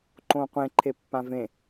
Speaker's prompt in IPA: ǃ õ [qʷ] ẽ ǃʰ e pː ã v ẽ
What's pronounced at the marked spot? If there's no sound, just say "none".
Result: qʷ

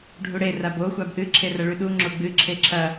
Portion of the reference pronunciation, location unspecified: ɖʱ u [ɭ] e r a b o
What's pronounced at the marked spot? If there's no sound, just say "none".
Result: ɽ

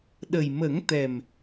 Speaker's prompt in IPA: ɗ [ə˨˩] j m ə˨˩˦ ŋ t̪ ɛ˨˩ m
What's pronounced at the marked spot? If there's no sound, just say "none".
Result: ə˨˩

